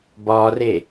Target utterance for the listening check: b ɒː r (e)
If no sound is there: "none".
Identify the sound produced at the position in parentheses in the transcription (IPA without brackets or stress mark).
e